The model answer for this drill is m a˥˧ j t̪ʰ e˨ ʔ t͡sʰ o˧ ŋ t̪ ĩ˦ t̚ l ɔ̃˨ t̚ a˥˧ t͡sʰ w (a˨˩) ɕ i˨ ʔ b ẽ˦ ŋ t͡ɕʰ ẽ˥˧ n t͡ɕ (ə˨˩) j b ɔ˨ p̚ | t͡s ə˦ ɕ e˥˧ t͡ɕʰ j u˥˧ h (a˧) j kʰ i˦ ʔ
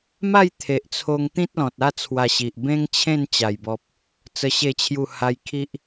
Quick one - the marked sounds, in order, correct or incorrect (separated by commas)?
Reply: incorrect, incorrect, incorrect